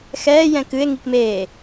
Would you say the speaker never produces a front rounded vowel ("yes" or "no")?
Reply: yes